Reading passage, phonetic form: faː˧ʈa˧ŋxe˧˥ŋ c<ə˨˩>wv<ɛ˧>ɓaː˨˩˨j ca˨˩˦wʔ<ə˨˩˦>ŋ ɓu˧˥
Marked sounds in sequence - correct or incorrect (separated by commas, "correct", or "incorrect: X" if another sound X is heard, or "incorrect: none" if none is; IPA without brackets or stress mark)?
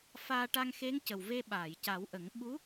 correct, incorrect: e˧, correct